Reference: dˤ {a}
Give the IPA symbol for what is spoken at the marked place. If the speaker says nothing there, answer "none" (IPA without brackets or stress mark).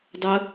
ə